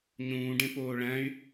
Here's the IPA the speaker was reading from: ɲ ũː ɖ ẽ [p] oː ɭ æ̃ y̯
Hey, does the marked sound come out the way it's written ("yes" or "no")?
yes